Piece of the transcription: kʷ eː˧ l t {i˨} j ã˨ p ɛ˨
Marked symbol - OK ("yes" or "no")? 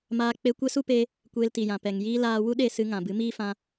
yes